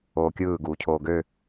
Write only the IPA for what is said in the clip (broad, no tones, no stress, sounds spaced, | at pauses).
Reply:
oː kʲ ɯː ɡ uː cʰ oː ɡ ø